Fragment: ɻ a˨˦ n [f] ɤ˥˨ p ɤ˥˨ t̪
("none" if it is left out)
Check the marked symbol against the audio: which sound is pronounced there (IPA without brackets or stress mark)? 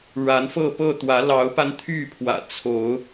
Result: f